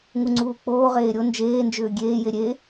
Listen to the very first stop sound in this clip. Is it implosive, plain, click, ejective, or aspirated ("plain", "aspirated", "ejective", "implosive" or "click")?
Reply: click